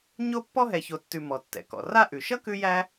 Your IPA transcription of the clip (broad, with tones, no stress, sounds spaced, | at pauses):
ɲ o˥ pː ɔ˥ ɦ ɛ˨ ç o˨ tː ʉ˨ m ɔ˩ tː ɛ̰˩ k ɔ̰˩ r a˥ ʔ ʉ˩ ʃ ʌ˥ k ʉ˦ j æ˦